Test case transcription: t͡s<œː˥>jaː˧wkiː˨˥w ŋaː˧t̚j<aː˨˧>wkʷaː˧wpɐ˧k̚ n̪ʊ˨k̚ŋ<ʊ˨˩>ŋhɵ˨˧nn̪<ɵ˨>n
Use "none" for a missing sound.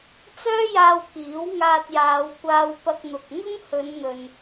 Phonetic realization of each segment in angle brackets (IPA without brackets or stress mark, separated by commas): œː˥, aː˨˧, ʊ˥, ɵ˨